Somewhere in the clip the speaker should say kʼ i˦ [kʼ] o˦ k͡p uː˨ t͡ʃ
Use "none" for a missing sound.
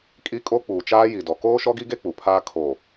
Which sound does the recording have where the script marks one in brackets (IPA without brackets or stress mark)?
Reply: kʼ